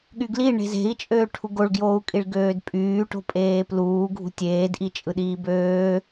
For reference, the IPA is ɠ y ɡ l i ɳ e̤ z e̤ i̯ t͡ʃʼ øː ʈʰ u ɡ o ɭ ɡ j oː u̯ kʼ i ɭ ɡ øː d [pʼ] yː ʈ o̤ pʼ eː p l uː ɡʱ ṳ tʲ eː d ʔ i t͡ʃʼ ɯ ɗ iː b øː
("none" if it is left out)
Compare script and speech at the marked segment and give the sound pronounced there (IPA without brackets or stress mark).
pʼ